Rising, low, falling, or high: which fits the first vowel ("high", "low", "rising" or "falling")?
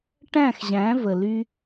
falling